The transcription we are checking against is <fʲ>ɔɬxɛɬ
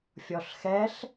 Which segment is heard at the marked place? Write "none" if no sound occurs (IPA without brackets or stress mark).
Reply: fʲ